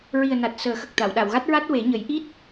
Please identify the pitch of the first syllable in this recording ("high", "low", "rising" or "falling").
low